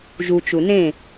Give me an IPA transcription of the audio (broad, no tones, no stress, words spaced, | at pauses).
ʒut͡ʃu nẽ